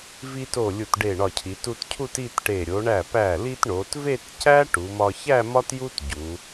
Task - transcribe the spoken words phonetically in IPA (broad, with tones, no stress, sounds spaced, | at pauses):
v i˧ t o˧˩ lʲ u˧˩ t ɖ e˧˩ ɳ ɒ˧˩ cʰ i˩˧ t u˧ t cʰ u˥˧ t i˥˧ t ʈ e˧˩ ɾʲ o˩˧ ɳ æ˧˩ p æ˧˩ l i˧ t ɳ o˩˧ t v e˥˧ t c æ˥ ʈ u˩˧ m ɒ˧ ç æ˥˧ m ɒ˥ t j u˥ t ɟ u˩˧